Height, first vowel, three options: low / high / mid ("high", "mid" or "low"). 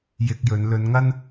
high